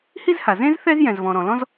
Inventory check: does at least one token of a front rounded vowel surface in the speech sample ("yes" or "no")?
no